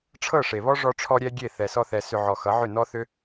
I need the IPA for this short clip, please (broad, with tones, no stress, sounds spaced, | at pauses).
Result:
ʈ͡ʂʰ ɤ˦˨ ʂ e˨ β ɔ˦ ʐ ɔ˧ ʈ͡ʂʰ ɔ˧ ɾʲ ɛ˦ ɡʲ e˦˨ θ ɛ˨ s ɔ˧ θ ɛ˨ s ʏ˧ ʕ ɔ˨ x ʌ˨˦ ʕ ʏ˦˨ n ɔ˦ θ ʏ˦